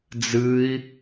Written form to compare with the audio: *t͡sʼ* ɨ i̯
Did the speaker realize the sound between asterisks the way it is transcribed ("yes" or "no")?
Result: no